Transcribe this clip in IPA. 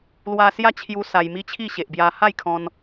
lwa˧sja˦t͡ɕʰju˧ sa˧jmi˦t͡ɕʰi˥˧ ɕe˨ʔbja˧ ha˥˧jkʰɔ̃˧n

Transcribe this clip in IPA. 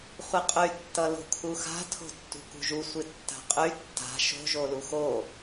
χʷɨqʼy tːʌlo̤kʰuxa̤ tʰo̤tːṳkṳʒu sʷɨtːa̤qʼy tːa̤ ʃo̤ ʒoluxo

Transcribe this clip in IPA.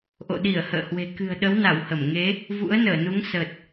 ʔo̰˧˨ɗi˧˩ə̯ hə̰ː˧˨hwe̤˨˩ kɨ̤˨˩ə̯ɗə˨˦wna˧˩w hə˧˩m ŋe˨˦ | vṵ˧˥ə̯nəː˧˩nu˨˦ŋ sə˨˩t̚

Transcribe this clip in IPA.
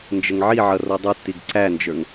nd͡ʒəŋʕiʕʌ rɔdˤutːiɡ ǀænd͡ʒə˞ŋ

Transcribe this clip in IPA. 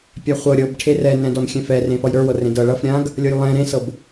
pʲaχʷɤ ɾʲɤbʈʰe rɛnɛ̃dɔn xʲɛ̃fɛrẽ fʌjɾə˞wɤ rẽdɤ ɭʌf ɾʲãɡ | lʲɤjlˠɛ̃ ɾẽsɤb

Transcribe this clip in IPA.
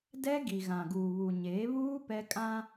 dɛ˦ɡi˨ ɣã˨ɡuː˨βu˨ ɲe˨˦βuː˦ pɛ˦kʼã˦

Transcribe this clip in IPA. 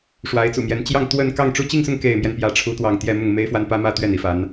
ʂwa˧˥ɪ̯t͡sṵ˨˩mjɛ˧˥n t͡ɕjɑ˥˧ŋt̪wə˥˧n kɑ˥˩ŋʈ͡ʂu˥ t͡ɕi˥˧ŋsʊ˥˧ŋ ke˥˧ɪ̯mjɛ˥˧n pjä˥˩ʈ͡ʂʰu˥t̪wɑ˥˧ŋ t̪jɛ˥˧mʊ˥˩ŋ me˥ɪ̯ fwa˥npä˥mä˥t̪ɥɛ˥˩n i˧˥fa˧˥n

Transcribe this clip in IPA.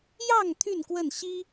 jɑ˥˨ŋ t̪ʰy˥˨nkwə˥˨n ɕi˦

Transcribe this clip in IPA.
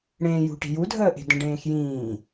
ɽẽːjṳʈi̤ judʱəːʔe̤ də̃ɖẽːxjĩː

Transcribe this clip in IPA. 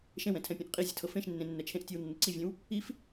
ʃẽwɛ̃tʰɛ̃pʲẽʔ qʼizʲətʰɤ fẽʃnːẽ nːɛt͡ʃʰẽʔ tʲewnːəǀivʲẽw | if

